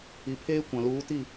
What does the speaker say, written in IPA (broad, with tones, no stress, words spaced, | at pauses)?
i˨pʰeː˦kʷã˨ luː˨˦ti˦˨